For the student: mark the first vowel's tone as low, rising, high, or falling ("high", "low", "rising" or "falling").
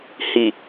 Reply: low